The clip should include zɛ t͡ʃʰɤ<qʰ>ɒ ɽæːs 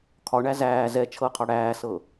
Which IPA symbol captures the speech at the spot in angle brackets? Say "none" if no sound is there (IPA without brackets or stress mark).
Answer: qʰ